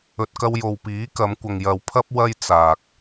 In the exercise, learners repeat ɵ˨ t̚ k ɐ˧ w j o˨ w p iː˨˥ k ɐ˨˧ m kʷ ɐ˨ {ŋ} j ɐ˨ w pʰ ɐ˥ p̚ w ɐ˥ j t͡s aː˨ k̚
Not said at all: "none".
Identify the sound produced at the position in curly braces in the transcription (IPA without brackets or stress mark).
ŋ